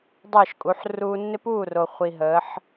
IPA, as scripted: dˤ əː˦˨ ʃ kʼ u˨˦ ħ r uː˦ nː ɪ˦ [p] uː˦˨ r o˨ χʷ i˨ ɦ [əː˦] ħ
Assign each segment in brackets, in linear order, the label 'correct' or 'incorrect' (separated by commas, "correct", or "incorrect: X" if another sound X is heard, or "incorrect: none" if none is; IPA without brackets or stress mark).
correct, incorrect: əː˨˦